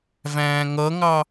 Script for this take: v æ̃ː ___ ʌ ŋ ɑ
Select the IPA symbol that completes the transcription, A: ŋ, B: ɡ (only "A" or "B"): A